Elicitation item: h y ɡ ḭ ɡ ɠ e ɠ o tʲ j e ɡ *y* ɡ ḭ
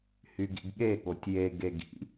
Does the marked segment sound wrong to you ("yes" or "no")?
yes